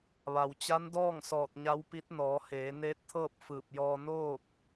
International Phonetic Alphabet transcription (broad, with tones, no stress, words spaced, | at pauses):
ʋa˩wt͡ɕa˧˥ndɔː˥˨ŋ sɔː˧˩t̚ɲa˧˥wpi˧˥t̚ nɔː˩˧heː˩˧neː˧˥t̚t̪ʰɤː˥˨p̚ fɯː˧˩p̚jɔː˧ noː˥˨k̚